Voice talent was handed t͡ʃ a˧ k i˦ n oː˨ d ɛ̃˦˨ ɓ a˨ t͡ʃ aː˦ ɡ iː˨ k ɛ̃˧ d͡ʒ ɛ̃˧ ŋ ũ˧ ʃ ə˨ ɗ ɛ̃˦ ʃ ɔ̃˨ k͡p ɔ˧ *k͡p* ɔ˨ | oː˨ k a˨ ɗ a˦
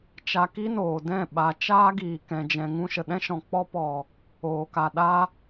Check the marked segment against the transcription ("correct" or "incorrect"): incorrect